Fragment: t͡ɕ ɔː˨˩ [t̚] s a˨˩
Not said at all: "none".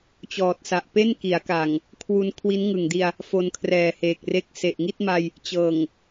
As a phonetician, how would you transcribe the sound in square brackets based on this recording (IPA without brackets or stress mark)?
t̚